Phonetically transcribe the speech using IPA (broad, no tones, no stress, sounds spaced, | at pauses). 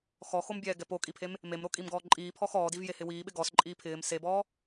x ɔ x o m bʲ ɛː ɡ ɛ p o kʼ i pʰ e m | m e m ɾ o kʼ i m ɡ ɔː ǃʼ iː pʰ ɔ x ɔː d i v j e h ɪ w iː ɓ ɪ ɡ ɔ s ǃʼ iː pʰ ɪː m s e b ɔː